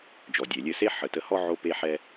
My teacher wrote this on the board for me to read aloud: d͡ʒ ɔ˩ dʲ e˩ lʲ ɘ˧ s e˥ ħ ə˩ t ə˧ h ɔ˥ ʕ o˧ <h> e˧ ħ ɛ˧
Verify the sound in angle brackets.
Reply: incorrect: p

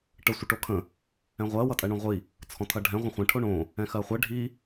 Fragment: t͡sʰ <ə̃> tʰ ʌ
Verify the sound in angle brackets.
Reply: incorrect: ɔ̃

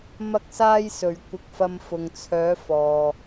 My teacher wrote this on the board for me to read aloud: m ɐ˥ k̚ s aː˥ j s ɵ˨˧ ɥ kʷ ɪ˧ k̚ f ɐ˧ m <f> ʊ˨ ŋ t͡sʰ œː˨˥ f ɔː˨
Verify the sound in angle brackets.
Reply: correct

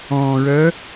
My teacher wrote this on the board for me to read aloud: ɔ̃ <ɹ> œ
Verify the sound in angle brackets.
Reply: correct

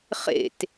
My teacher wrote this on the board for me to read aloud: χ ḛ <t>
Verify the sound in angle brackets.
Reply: correct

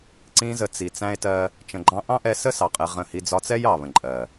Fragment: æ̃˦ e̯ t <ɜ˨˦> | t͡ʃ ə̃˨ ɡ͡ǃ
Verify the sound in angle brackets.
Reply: incorrect: ɜ˦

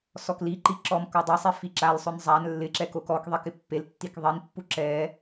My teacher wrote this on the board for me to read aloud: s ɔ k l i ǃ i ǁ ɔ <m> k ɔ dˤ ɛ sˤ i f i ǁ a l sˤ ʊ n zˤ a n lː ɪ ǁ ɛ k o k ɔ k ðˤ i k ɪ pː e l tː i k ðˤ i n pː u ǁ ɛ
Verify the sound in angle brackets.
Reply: correct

